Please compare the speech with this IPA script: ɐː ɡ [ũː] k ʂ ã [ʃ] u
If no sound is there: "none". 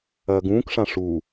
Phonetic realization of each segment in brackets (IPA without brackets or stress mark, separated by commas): ũː, ʂ